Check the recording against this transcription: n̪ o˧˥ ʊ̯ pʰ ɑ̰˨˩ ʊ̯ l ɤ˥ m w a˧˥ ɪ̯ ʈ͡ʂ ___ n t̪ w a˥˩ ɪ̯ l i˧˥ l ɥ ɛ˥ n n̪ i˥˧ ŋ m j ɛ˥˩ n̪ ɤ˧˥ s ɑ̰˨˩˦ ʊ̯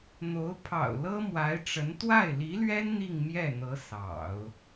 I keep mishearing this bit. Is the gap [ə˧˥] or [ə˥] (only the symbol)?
ə˧˥